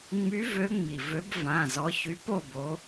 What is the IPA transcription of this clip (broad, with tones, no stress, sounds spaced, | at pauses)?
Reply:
ŋ͡m y˨˦ v ø˨˦ ŋ͡m i˩ v ø˨˦ b v ã˩˧˩ z ɔ˨˦ ç y˨˦ p o˥˨ b o˨˦